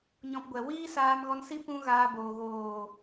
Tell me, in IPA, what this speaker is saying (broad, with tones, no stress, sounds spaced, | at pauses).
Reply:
ɲ ɔ̃˧ p ɡʷ ɛ˨ w iː˦ s aː˧ m ɣ ɔ˧ n s i˦ p ũ˦ ɣ aː˧ b oː˨ ɣ oː˨